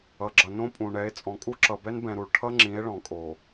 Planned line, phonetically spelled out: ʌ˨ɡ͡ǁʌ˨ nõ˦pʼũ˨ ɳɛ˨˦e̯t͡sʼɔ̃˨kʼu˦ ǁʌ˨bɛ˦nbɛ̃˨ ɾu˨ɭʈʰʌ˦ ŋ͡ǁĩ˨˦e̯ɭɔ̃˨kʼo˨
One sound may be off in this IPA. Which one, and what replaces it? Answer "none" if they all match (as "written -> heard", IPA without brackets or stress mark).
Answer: none